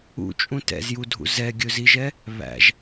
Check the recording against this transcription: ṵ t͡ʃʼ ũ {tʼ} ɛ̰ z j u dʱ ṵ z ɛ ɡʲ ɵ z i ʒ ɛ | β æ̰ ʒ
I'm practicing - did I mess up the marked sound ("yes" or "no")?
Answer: yes